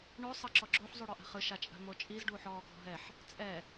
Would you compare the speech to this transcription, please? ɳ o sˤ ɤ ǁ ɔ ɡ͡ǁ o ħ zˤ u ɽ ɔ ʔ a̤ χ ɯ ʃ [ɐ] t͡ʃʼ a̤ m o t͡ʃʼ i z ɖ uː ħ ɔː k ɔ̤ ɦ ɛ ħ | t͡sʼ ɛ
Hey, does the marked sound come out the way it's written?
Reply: no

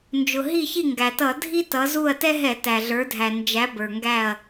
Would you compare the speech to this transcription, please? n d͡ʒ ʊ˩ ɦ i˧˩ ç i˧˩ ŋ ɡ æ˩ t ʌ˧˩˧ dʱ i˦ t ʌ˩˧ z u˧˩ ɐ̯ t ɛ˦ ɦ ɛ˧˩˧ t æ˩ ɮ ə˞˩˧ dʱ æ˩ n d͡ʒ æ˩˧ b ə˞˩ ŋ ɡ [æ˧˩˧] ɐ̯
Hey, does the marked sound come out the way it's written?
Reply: no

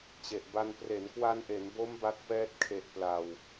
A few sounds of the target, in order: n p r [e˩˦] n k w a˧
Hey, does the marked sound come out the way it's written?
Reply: yes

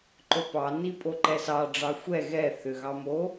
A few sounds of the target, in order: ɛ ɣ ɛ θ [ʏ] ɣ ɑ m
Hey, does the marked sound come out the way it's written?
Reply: yes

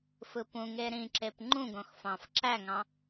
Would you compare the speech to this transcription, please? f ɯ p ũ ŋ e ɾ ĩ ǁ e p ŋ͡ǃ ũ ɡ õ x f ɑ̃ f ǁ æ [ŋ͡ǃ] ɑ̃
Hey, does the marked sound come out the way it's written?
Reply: no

